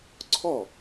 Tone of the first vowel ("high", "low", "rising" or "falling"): falling